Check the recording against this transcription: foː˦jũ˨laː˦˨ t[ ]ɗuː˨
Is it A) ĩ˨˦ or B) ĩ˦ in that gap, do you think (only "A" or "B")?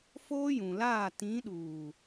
A